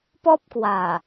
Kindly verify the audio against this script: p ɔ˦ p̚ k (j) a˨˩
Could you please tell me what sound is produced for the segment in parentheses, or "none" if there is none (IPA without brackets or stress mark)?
w